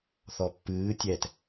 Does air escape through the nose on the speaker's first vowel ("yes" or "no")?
no